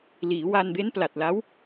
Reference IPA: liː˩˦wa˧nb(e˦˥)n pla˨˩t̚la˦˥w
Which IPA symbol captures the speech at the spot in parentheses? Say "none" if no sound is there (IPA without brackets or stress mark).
e˦˥